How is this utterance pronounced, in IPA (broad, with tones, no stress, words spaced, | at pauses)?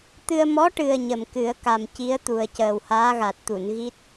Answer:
t̪ɨ˧ə̯ mɔ˧˥ʈɨ˨˩ə̯ ɲə˨˩mkɨ˨˩˦ə̯ ka˨˩mci˧˥ə̯t̪u˨˩ə̯ cəː˨˩whaː˧˥ɣa˨˩t̚t̪u˨˩˨n ɣi˦˥t̚